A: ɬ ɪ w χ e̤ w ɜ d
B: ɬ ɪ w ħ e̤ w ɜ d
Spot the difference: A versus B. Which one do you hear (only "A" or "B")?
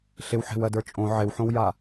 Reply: B